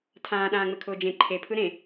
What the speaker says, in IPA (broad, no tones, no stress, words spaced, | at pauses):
tʰãː ɗãːŋ͡mɘkʰʊːd͡ʒẽ ǃʰe pʰɯɾẽ